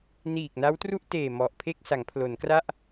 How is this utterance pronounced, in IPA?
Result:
n iː˨˩ k̚ n a˦˥ w t r u˥˩ ʔ t eː˨˩ m ɔ˨˩ ʔ pʰ e˥˩ k̚ s a˩˦ ŋ pʰ l o˩˦ n k r a˥˩ ʔ

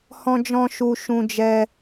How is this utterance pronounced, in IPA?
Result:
h ɔ̃˦ d͡ʒ ɔ̃˦ ʃ u˦ ʃ ũ˦ d͡ʒ ɛ˦

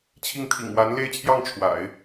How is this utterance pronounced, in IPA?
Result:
t͡ɕʰ i˥˩ ŋ t̪ʰ ḭ˨˩ ŋ w a˧˥ n l e˥˧ ɪ̯ t͡ɕʰ j ɑ˥˩ ŋ ʈ͡ʂʰ w a̰˨˩˦ ɪ̯

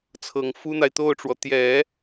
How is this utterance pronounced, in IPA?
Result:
t͡sʰ ɤ˨˩ ŋ f u˥ n̪ a˨ ɪ̯ t̪ o˥˩ ʊ̯ ʈ͡ʂ w ɔ˩ t̪ j ɛ˨˩˦

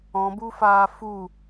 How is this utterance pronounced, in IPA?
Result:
ɔ̃ b u f aː f u

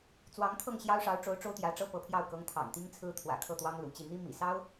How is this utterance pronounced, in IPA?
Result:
t͡s w ɑ˧˥ ŋ t̪ʰ ɤ˥˩ ŋ ɕ j ɑ˥ ʊ̯ ʂ ɑ˧˥ ʊ̯ ʈ͡ʂ o˧˥ ʊ̯ ʈ͡ʂ o˥ ʊ̯ t̪ j ä˧˥ ʈ͡ʂ ɤ˥ p ɤ˧˥ pʰ j ɑ˥˩ ʊ̯ k ɤ˧˥ ŋ t̪ʰ ɑ̰˨˩ ŋ t̪ i˥ ŋ t͡sʰ ɹ̩˥ t̪ʰ w ä̰˨˩ kʰ ɤ˥˩ t̪ w ɑ˥ ŋ l ṵ˨˩ t͡ɕ i˥˩ n̪ i˥ m ḭ˨˩ s ɑ˥ ʊ̯

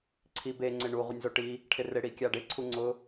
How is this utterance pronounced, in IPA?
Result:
ǀʰ i b e ŋ͡ǀ ɪ ɳ u ʁʷ ɪ nʲ z o ʈ i | ʈʰ ɪ r ɪ ɽ i kʲ a ɖ ɪ ǀʰ u ŋ͡ǀ ʊ

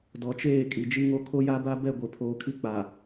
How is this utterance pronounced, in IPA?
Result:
d ɔ˨ t͡ʃ eː˦˨ kʼ i˨ d͡ʒ i˦ ŋ o˦ kʰ o˦ j a˦ b a˦ b ɛ˦˨ ɡʷ e˨ pʰ oː˨ kʰ i˦ k͡p a˨

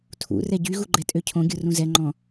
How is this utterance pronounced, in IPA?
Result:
tʰ ṵ r ɛ ɟ y ɣ u ɡ͡ǃ ɛ tʼ ø cʰ õ ɡʲ o r ũ z ɛ ŋ͡ǃ ɔ̃

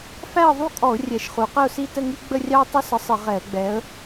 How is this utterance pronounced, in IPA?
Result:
f æ˥˧ ə̯ ðˤ u˥˧ kʼ ɔ˧˩˧ ʊ̯ rʲ ɛ˩˧ ʃ χ u˩˧ q ə˥˧ ʊ̯ s i˥˧ t ə˥˧ ŋ i˥ ɡ͡b ə˥˧ rʲ ɑ˥ ʊ̯ tˤ ɪ˥ s ə˨˥ sˤ ɪ˧˩˧ ʁ ɛ˧˩˧ ə̯ ɡ͡b ɛ˨˥ ə̯

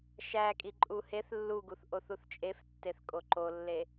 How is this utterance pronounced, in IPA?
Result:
ʃ æ kʼ i ǃʼ u h e θ lː u ɡ u θ ʔ o θ u θ t͡ʃʼ e f tː e θ kʼ o ǃ o lː e

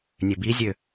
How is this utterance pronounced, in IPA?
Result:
nʲ ø b i zʲ ø

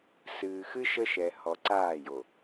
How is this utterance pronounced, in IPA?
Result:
s ɨː˨ x ɨ˦ ʃ ə˦ ʃ ɛ˨ h ɔ˨ ǀ aː˦˨ j o˨

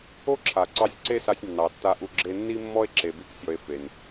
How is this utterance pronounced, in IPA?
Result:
o˥ ǁʰ a˩ ǀ ɑ˧ sʲ ǀ e˥ s a˧ sʲ nː ɑ˩ tː a˧ ʔ u˧ ɡ͡ǁ e˧ nː i˥ mː ɔ˥ e̯ ǁ e˧ b i˥ k sʲ ɔ˧ e̯ f e˩ n

